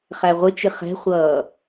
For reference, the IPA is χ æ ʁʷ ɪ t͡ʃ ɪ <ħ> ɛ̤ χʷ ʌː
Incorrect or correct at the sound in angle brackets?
incorrect: χ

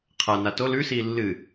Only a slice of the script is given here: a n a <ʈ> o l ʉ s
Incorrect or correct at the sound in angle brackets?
incorrect: t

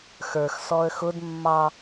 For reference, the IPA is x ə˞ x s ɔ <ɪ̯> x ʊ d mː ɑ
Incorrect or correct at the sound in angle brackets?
incorrect: ə̯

